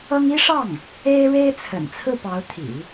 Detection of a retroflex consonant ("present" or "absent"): present